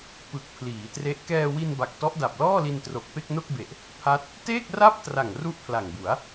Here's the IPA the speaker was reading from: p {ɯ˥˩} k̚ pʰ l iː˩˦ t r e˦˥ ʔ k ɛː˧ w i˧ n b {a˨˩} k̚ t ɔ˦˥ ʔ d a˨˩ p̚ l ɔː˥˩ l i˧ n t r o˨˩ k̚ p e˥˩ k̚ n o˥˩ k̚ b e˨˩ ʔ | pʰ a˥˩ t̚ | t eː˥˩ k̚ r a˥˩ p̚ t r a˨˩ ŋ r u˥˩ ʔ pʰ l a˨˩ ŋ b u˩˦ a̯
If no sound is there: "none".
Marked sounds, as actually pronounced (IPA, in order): ɯ˨˩, a˨˩

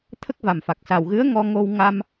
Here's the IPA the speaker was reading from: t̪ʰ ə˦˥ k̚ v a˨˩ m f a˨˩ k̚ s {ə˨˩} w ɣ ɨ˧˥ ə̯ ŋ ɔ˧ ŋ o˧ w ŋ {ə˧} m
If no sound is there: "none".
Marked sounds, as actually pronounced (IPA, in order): a˨˩, a˧

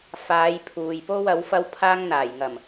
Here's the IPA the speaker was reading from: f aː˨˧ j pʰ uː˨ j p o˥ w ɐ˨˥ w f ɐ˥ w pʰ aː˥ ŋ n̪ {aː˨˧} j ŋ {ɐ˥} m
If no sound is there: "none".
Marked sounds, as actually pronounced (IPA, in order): aː˨˩, ɐ˨˩

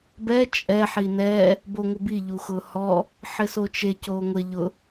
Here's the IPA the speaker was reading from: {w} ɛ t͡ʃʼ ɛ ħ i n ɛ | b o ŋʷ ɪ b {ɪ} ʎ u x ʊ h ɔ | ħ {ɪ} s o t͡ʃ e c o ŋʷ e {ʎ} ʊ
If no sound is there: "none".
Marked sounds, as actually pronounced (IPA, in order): b, i, ɪ, ʎ

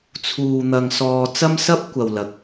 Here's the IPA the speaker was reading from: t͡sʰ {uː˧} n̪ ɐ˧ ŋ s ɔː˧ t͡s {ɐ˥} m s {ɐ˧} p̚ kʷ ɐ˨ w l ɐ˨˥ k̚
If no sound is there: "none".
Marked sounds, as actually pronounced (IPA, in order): uː˧, ɐ˥, ɐ˥

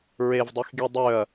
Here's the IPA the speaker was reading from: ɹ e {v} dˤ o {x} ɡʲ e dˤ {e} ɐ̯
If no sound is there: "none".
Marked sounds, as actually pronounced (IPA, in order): v, x, ø

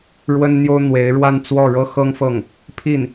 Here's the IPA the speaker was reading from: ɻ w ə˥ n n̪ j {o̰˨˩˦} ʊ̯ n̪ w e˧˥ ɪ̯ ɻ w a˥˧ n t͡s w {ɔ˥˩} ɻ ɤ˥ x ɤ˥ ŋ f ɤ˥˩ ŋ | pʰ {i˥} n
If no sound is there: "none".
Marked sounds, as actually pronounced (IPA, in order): o˥, ɔ˥˩, i˥˩

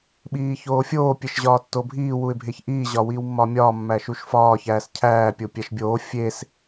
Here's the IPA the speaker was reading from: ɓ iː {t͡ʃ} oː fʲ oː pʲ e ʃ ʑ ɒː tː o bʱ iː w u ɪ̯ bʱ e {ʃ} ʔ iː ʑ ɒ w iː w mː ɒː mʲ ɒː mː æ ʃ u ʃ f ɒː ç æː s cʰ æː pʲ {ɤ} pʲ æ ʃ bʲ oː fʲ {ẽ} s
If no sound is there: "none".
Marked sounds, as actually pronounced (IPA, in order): ç, ç, o, e

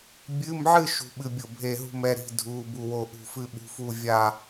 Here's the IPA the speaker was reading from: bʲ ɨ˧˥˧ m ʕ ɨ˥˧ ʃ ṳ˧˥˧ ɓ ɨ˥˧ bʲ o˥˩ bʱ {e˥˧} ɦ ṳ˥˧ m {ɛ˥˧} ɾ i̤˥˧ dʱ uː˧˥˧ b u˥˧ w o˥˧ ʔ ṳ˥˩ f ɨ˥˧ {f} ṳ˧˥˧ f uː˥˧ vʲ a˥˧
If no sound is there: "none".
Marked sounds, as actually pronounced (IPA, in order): e˥˧, ɛ˧˥˧, ɓ

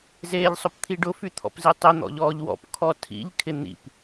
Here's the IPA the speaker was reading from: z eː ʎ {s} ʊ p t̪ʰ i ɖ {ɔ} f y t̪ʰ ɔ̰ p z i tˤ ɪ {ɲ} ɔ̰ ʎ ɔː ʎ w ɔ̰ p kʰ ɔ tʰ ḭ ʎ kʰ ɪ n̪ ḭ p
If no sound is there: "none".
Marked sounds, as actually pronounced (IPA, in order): sˤ, ʊ, n̪

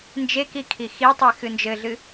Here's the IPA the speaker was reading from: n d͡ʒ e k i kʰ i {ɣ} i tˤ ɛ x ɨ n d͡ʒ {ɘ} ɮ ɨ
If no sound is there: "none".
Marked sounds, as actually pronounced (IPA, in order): x, ɘ

